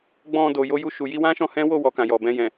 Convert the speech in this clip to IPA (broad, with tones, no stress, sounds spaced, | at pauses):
ɡ͡b ɔ̃˧ d o˨ j o˧ j u˧ ʃ u˨ j i˧ w ã˦ ʃ ɔ̃˧ h ɛ̃˦ w o˦˨ w ɔ˨ k ã˨ j ɔ˨ b ɛ̃˧ j ɛ̃˨